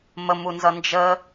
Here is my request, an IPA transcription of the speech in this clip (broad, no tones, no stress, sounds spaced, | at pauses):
m ə m u n z ʌ n d͡ʒ ə